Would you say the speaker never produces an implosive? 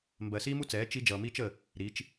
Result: yes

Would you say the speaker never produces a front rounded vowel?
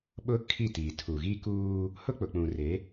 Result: yes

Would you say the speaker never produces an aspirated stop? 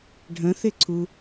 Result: no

